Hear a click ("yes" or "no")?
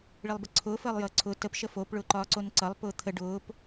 yes